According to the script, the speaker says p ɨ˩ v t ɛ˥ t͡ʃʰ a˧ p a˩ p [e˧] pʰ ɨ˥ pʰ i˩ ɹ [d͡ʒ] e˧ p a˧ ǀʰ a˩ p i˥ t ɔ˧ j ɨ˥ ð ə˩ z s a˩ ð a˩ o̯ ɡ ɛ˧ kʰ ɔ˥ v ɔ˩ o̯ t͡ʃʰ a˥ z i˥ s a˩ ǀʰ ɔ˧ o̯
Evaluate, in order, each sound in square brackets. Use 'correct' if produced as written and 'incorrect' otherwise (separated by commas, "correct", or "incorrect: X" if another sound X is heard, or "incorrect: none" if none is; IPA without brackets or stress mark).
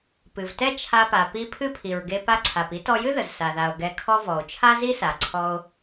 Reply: incorrect: i˧, incorrect: ɡ